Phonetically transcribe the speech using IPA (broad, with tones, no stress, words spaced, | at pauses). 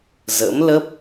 zə̰˧˥mlə˦˥p̚